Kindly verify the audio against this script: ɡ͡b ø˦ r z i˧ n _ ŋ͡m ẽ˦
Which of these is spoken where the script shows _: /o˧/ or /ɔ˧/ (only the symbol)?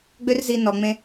ɔ˧